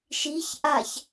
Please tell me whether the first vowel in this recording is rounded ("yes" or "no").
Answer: no